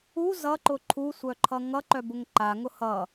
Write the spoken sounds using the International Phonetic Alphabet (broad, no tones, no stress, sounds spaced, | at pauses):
u z ʌ ǃ ʊ ǃʰ u sʷ œ ǃʰ ʌ ŋ ʌ ǃ œ b ʊ ŋ ǃ a ŋ ʊ h ʌ